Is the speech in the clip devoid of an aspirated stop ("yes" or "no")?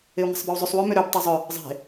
yes